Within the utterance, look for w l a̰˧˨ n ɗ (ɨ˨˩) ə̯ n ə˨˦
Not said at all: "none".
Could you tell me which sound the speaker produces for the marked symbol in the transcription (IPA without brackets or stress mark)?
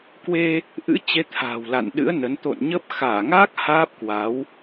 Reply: ɨ̰˧˥